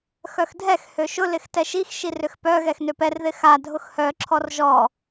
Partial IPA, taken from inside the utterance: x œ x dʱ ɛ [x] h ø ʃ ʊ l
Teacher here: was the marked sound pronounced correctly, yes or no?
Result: yes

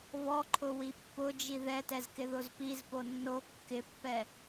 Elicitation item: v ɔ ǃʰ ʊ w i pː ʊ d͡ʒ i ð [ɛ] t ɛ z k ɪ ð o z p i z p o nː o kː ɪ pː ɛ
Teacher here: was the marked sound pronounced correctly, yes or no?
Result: yes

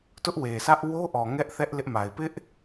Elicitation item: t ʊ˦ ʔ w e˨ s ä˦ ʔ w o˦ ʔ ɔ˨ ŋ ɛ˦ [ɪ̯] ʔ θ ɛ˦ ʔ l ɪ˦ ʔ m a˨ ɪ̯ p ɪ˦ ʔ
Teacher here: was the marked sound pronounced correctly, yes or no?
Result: no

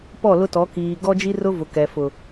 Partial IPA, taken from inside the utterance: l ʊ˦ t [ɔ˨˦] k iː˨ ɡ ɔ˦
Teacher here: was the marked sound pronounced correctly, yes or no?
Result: yes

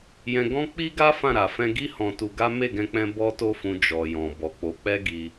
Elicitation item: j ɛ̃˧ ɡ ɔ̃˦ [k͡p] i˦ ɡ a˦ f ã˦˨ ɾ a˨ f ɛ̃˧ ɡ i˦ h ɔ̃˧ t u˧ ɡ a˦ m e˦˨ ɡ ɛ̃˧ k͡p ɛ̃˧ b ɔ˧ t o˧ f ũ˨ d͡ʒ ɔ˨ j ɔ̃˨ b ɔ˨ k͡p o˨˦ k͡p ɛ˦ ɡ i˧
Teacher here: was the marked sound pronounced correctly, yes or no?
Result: yes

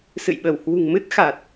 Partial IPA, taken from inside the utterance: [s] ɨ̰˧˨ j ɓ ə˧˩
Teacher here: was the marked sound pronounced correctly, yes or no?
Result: yes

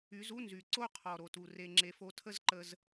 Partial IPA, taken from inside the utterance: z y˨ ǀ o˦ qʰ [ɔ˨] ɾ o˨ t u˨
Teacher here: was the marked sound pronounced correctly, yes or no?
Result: yes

